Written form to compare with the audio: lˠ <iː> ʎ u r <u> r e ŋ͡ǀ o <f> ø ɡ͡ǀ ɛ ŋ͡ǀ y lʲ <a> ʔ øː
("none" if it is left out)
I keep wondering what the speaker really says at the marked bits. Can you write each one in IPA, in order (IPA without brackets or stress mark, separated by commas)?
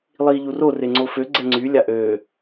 iː, o, f, a